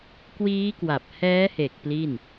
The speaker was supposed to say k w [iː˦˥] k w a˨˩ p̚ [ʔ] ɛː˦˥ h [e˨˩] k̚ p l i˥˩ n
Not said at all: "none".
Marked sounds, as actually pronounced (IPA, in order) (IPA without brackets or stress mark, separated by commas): iː˦˥, h, e˨˩